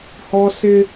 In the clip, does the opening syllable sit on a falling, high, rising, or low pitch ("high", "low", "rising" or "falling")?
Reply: high